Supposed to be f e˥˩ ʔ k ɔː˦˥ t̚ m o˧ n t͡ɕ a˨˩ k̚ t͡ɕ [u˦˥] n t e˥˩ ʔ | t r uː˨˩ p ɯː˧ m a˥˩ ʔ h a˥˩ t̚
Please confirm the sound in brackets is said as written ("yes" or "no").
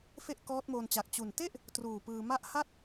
no